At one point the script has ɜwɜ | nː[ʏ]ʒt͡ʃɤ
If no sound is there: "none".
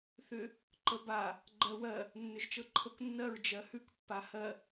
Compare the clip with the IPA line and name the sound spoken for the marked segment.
ʏ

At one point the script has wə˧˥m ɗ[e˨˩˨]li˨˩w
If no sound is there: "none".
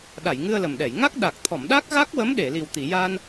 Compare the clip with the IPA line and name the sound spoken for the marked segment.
e˨˩˨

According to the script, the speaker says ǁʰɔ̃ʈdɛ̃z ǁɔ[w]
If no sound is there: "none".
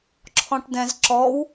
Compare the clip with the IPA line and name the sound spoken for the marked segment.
w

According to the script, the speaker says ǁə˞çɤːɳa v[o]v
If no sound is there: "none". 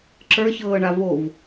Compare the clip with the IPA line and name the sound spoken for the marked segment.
o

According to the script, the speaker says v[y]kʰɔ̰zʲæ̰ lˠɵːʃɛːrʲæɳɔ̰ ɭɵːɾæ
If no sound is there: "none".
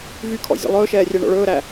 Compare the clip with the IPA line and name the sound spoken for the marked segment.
y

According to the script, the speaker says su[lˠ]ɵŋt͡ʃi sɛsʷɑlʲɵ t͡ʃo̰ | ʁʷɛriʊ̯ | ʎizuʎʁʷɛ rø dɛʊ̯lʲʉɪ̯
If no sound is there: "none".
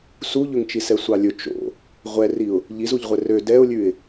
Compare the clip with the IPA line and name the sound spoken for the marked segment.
ʎ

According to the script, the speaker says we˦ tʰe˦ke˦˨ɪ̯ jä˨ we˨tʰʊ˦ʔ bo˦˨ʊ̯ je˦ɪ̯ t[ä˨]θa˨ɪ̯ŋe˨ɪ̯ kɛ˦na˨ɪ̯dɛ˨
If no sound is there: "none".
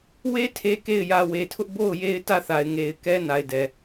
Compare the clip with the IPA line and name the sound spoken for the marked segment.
ä˦˨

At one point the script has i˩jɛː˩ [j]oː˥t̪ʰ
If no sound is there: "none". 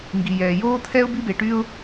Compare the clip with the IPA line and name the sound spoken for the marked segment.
j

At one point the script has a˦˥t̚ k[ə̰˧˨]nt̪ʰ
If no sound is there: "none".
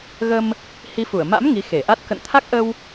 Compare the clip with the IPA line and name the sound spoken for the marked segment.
ə̰˧˨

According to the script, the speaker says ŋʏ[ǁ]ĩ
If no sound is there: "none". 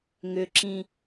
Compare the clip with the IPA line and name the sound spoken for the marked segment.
ǁ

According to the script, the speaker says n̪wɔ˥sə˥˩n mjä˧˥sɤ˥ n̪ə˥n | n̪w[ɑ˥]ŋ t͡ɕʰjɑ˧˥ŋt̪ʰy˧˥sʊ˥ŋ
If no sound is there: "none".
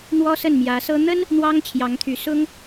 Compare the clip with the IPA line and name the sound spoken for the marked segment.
ɑ˥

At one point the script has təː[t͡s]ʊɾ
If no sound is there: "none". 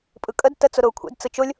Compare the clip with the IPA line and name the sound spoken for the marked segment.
t͡s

